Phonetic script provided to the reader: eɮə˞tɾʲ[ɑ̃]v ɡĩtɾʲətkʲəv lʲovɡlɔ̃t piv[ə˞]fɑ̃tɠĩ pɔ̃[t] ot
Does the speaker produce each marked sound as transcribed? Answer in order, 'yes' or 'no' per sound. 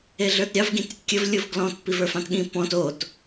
no, yes, yes

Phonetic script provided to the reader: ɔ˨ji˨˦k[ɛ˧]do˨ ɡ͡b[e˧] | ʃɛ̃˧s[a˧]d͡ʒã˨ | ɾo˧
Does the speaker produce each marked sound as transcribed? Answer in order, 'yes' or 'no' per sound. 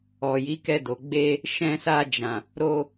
yes, yes, yes

